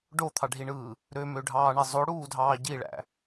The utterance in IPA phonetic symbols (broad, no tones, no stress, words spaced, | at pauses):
ɖot̪ʰɑɖʱiɳɯː | ɾømøɖʱɑːɳe zˤoɽuːdʱɑː ɟiɭæ̰